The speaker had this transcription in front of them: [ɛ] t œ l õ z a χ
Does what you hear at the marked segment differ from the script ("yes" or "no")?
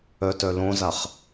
yes